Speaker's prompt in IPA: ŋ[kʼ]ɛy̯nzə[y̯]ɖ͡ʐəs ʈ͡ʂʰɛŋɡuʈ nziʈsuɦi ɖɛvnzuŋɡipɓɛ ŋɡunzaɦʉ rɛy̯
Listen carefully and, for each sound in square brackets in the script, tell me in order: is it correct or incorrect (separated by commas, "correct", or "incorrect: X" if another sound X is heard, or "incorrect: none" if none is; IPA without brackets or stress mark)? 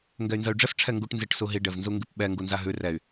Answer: incorrect: ɡ, correct